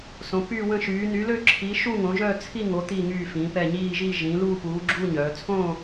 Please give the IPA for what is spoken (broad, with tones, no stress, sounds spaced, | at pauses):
s õ˨˥ p yː˥˧ w ə̃˥˧ ʃ yː˨˥ n y˨˥ l ø˥˧ ǁʰ i˨˥ ʃ u˥˧ ŋ õ˨˥ ʒ œː˥˧ t͡sʰ i˥˧ ŋ o˨˥ t̪ i˥˧ ŋ yː˥˧ f ĩ˨˥ p ɛ˥˧ ɲ iː˥˧ ʒ i˥˧ ʒ ĩ˨˥ l uː˥˧ p uː˨˥ ɡ͡ǁ uː˥˧ ɲ œː˨˥ t͡sʰ õː˥˧